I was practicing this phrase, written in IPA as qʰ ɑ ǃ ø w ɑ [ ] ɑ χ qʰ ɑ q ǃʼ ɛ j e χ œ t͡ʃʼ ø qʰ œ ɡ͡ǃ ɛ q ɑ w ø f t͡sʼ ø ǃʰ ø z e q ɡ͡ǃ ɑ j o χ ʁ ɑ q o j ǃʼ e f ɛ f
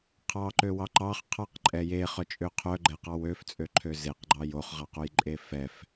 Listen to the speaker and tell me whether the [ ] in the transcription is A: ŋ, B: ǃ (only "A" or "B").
B